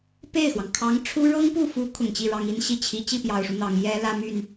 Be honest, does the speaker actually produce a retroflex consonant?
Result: yes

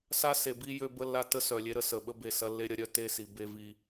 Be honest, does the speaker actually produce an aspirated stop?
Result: no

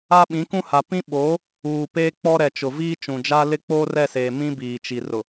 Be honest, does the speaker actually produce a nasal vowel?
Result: yes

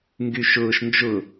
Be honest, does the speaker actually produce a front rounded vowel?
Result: yes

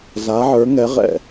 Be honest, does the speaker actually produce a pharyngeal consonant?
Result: yes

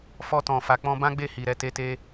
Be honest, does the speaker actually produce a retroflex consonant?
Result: no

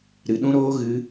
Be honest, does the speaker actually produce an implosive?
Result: yes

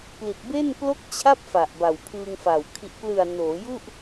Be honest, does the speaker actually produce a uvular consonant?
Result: no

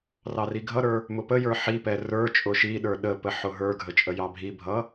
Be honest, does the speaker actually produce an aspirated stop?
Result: no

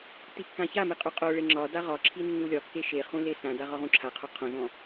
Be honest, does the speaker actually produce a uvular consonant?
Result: yes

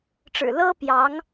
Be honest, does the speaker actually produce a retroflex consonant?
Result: yes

